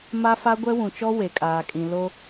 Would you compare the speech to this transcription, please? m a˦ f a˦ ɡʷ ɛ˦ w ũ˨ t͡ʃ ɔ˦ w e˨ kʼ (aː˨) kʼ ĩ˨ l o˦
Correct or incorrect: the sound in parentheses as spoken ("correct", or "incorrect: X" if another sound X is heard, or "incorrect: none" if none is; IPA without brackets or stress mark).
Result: correct